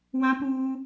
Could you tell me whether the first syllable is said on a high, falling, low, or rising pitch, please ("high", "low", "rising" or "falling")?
high